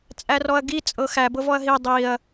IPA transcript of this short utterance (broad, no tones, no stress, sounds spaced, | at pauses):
t͡sʼ æ r ɔ ɐ̯ ɡ i t͡sʼ ɤ x æ b ɤ v ɔ ɐ̯ ɦ i dˤ i ɐ̯